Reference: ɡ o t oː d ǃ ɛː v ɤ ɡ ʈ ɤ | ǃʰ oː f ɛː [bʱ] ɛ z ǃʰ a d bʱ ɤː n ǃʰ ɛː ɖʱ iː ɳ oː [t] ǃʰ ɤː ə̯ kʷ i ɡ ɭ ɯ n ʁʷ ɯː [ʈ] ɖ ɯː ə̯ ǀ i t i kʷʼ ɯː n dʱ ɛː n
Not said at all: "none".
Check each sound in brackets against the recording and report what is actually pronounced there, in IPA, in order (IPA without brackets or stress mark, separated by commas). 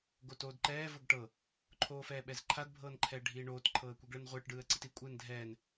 ɓ, t, ʈ